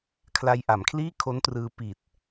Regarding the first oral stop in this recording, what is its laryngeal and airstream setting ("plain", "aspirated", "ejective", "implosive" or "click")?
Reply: aspirated